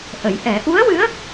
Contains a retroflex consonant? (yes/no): no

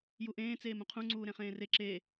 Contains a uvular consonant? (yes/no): yes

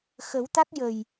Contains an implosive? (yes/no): no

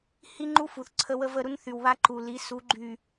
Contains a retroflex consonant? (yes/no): no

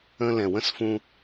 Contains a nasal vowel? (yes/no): yes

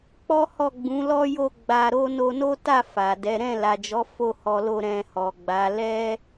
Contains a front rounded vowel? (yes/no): no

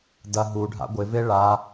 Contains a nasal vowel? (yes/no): no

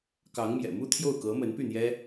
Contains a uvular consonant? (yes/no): no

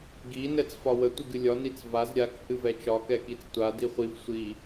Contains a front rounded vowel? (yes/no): no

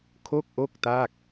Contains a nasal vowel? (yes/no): no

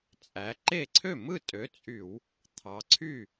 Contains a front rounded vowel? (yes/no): yes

